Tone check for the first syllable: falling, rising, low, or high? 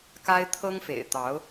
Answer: high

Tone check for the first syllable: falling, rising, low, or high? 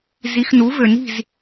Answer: rising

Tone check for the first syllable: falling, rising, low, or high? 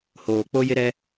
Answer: low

